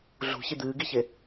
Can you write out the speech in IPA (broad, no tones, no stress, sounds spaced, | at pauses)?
ɮ ṳ ç i d̪ ɨː ɡ i ç e